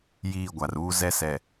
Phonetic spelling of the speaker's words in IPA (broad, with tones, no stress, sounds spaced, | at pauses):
j iː˦˨ ɡʷ a˨ r uː˦ z ɛ˦ s ɛ˨